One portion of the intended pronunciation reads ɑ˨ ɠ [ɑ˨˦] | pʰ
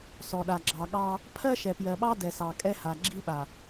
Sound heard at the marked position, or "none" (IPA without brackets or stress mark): ɑ˦